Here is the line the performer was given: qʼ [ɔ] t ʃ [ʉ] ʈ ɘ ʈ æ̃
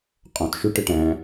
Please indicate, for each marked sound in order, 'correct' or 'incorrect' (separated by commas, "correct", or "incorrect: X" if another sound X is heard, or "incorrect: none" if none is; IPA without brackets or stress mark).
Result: incorrect: ɔ̃, correct